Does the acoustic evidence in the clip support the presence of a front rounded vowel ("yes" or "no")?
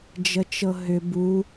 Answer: yes